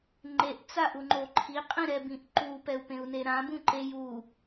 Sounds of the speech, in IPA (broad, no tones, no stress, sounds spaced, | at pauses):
ŋ͡ǃ e ʔ t͡s a ʔ u ŋ͡ǃ o ǃʰ i qʼ ĩ ɾ ɛ b ĩ ʔ ǃ u p ɛ u̯ p ẽ u̯ n e ɾ ã b ũ ǃ e j u